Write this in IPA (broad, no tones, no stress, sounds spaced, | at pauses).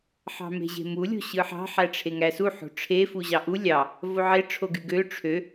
ħ ɑ̤ m e̤ ʑ e̤ m u lʲ o̤ ɕ ɯ ħ ɑ̤ ħ æ ʈ͡ʂʰ e ŋ æ s u ħ o̤ ʈ͡ʂʰ e f u ʑ ɑ ʔ u lʲ ɑ | v o ʕ e ʈ͡ʂʰ o ɡ y ɡ ø ʈ͡ʂʰ ø